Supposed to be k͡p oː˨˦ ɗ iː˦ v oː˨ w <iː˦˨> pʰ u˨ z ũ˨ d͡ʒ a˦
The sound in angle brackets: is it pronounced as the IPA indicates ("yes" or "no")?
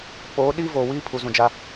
no